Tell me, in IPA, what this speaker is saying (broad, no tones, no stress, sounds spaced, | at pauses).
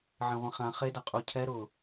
ʕ ẽ ʁʷ ĩ χ ã χ e d a qʼ u cʰ ɛ ɾ ʊ